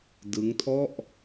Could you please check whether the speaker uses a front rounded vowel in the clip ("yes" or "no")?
no